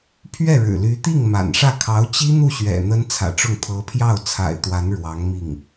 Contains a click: no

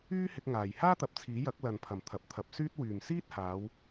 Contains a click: no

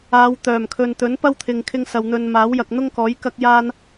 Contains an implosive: no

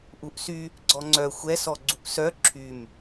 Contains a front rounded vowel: yes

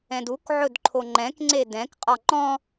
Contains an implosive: no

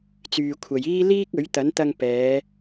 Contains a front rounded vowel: yes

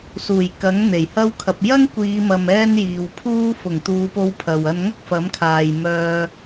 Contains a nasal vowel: no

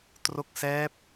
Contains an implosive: no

